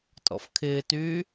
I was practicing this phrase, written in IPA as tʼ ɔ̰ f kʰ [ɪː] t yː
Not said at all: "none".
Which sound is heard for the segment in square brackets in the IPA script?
ɪː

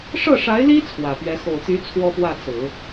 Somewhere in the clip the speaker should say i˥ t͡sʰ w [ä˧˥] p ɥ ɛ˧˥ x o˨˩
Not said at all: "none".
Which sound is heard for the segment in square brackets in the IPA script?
ä˨˩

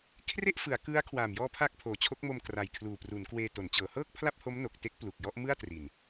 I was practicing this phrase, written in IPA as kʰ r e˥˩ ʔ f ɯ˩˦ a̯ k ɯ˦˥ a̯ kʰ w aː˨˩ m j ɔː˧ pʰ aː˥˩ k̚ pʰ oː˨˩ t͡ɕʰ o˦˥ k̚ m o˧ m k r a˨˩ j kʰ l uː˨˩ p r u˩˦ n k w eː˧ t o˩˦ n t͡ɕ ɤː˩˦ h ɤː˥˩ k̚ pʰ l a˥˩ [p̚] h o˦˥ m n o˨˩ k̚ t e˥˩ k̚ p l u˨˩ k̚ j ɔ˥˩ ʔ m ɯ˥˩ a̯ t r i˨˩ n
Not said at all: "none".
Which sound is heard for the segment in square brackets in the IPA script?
p̚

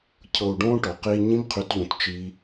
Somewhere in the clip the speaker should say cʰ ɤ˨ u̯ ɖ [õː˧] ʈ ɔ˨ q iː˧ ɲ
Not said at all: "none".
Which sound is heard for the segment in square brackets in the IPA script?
õː˧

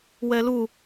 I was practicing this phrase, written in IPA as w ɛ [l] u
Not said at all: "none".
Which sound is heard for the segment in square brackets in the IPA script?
l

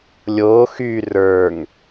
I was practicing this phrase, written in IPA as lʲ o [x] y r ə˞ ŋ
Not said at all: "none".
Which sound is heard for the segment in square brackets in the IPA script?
x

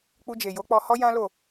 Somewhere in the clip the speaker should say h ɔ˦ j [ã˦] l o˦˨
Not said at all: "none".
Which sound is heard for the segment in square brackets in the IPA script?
ã˦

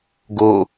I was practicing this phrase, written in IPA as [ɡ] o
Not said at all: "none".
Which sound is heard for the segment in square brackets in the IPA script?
ɡ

